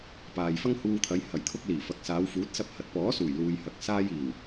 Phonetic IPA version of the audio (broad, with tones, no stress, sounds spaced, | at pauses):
p aː˨ j f ɐ˥ ŋ h uː˧ t̪ʰ ɐ˨˧ j h ɐ˨˩ j t̪ʰ ʊ˧ k̚ l iː˨˩ f ɐ˨˥ k̚ s aː˨˧ w f uː˨˥ t̚ s ɐ˧ p̚ h ɐ˨ t̚ p ɔː˨˥ s uː˨˩ j l uː˨ j h ɐ˨ k̚ s aː˧ j iː˨˩ w